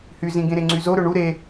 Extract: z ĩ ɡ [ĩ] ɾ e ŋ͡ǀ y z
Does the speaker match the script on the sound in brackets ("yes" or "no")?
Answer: no